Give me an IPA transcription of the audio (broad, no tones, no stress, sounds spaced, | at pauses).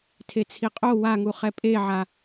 tʰ e t͡sʰ i qʼ o w a ŋ u χ ɛ pʼ e ʕ a